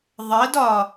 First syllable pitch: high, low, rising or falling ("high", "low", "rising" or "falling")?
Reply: rising